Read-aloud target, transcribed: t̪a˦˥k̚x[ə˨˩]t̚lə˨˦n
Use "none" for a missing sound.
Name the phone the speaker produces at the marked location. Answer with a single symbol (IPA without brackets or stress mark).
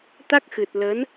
ɨ˨˩